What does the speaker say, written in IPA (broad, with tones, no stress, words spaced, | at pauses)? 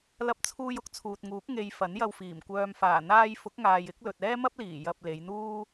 lɐ˧p̚t͡sʰuː˧j ʊ˥k̚t͡sʰuː˨t̚ŋuː˨˥k̚ ŋe˨j fɐ˨˥njɐ˧wfiː˨˩m kʷœː˨mfaː˨˩ n̪aː˥j fʊ˨˥k̚ŋaː˨jɪ˨˥k̚lɵ˨t̚ ɛː˥mɐ˥p̚liː˨˩ jɐ˧p̚le˨˧j n̪uː˥